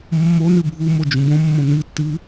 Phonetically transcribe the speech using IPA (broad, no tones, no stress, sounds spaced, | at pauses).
mː o n ɨ bʱ u m o d͡ʒ ũ b õ mː õ n ɨ tː ɨ